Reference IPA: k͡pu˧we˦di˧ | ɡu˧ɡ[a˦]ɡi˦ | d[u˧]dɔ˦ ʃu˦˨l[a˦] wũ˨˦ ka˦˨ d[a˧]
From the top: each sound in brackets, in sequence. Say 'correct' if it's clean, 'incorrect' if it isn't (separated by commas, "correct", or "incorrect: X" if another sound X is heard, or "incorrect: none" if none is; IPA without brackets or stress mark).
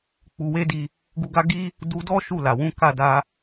correct, correct, incorrect: a˨, correct